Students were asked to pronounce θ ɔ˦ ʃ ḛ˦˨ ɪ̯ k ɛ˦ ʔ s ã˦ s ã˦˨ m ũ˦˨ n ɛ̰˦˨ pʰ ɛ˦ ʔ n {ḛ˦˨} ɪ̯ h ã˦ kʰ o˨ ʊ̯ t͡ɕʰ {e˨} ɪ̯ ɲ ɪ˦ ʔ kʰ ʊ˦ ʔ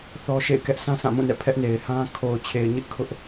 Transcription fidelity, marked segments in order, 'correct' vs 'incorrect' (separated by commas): incorrect, correct